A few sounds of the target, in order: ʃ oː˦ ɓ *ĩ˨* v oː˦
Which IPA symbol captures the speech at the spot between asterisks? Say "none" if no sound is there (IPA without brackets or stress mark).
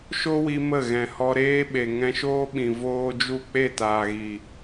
ĩ˨